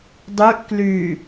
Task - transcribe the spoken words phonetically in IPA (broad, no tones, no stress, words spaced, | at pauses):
dˤyʔ kly